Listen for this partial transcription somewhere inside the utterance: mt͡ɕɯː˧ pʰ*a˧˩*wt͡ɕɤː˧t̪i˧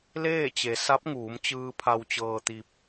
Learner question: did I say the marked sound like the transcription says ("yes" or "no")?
no